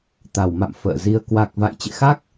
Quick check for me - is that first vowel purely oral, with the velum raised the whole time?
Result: yes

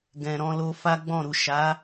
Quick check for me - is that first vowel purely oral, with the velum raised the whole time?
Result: no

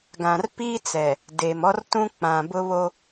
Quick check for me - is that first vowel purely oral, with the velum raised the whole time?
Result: no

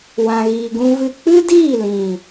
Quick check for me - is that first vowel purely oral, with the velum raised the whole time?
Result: no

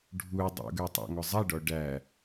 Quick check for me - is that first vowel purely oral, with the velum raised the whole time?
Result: yes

